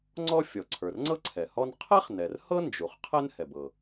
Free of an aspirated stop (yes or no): no